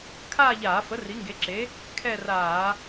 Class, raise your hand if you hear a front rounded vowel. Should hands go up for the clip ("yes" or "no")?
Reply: no